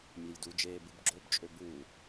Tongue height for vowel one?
mid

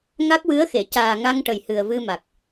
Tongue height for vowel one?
low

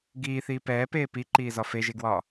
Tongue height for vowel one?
high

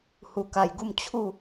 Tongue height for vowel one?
high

